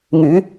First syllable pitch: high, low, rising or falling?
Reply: rising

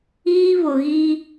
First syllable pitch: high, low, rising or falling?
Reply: high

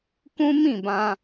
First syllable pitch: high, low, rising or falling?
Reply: high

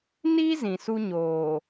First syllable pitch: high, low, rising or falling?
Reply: high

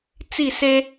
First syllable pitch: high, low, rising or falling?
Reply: falling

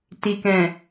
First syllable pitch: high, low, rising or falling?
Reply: low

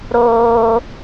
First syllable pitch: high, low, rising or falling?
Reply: high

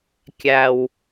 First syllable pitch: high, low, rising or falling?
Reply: low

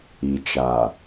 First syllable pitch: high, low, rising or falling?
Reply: low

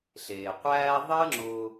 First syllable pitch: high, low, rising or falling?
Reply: low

